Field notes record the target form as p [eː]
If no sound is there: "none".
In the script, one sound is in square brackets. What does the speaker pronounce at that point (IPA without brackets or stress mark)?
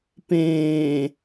ẽː